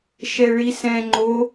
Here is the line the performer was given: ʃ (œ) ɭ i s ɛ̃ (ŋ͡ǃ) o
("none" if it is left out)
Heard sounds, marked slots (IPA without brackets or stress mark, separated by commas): ɛ, ŋ͡ǃ